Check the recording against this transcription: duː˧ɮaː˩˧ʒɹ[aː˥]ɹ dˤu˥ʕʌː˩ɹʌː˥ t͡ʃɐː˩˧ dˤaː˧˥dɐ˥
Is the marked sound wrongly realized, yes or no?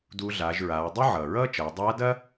yes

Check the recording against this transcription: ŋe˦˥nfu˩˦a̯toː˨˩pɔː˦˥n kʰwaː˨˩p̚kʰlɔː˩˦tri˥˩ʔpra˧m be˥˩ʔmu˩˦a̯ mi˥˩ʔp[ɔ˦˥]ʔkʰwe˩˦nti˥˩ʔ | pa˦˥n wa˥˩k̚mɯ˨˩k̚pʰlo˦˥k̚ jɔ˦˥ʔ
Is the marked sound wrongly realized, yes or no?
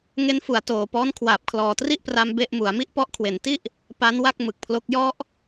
no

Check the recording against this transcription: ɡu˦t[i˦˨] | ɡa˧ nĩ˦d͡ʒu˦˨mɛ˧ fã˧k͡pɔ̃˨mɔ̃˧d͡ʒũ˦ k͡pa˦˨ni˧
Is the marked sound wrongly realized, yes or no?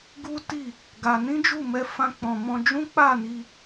no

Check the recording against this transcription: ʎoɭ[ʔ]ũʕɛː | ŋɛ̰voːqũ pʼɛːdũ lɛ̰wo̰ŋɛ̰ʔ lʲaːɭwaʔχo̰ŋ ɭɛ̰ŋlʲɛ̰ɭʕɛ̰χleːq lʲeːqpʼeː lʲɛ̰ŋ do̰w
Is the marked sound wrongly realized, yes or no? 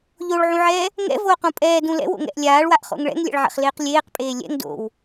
yes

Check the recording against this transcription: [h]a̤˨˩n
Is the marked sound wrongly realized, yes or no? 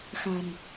yes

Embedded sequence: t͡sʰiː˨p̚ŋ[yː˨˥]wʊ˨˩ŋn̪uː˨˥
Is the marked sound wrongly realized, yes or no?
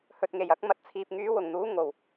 no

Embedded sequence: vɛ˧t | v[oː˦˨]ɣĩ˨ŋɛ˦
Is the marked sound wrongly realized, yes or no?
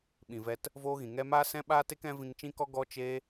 yes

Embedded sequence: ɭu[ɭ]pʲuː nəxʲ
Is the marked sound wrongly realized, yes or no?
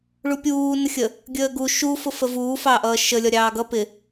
yes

